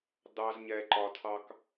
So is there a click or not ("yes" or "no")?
yes